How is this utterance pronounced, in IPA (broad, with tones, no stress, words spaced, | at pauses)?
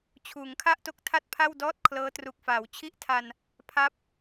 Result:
t͡ɕʰuː˩˦ŋkʰa˥˩ʔto˦˥k̚ tʰa˥˩t̚pʰa˥˩wdɔː˥˩t̚ kʰlɤː˦˥tru˨˩k̚faː˩˦w t͡ɕʰi˥˩ʔtʰa˧n | pʰa˥˩p̚